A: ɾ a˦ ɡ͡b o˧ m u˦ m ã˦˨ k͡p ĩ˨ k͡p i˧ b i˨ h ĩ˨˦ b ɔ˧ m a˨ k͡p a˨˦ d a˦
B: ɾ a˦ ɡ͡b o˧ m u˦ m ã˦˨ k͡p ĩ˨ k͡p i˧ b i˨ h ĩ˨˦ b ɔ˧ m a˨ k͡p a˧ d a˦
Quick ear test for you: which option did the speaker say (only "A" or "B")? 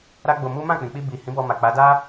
A